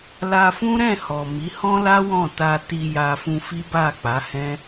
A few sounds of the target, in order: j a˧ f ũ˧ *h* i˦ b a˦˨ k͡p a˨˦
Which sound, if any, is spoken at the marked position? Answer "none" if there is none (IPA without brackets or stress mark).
f